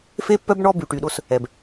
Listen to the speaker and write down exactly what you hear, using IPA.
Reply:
f e˦ pː œ˦ b ɳ ɔ˦ b y˨ ʈ y˨ ɗ o˦ s | ɛ˨ b

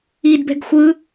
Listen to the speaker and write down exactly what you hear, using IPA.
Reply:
i d b ɛ̤ ɡ xʷ ɯ

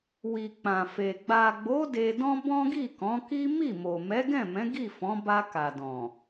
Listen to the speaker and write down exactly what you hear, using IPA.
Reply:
w i˨ k͡p ã˨ f e˨ ɡ͡b a˨ ɡ͡b o˨˦ d e˧ d ɔ̃˦ b ɔ̃˦ ɡ i˦˨ k ɔ̃˨˦ k i˦ m i˦˨ m o˨ m ɛ˨˦ ɡ ɛ̃˦˨ m ɛ̃˨˦ ɡ i˦˨ f ɔ̃˨˦ b a˧ k a˨ d ɔ̃˨

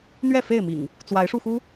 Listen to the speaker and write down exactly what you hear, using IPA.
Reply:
n̪ ɥ ɛ˥˨ f e˥˨ ɪ̯ m ḭ˨˩ ŋ | t͡s w a˨˦ ɪ̯ ʂ u˧ x u˦

